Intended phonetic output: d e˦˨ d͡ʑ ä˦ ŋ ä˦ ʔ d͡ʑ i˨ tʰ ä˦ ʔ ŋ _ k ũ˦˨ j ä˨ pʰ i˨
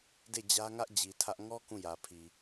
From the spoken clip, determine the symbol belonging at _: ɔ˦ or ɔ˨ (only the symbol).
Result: ɔ˦